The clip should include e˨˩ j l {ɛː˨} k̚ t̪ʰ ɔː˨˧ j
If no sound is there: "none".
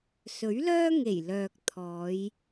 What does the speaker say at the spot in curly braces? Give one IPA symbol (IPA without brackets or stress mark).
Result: œː˨